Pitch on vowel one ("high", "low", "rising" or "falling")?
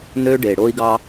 high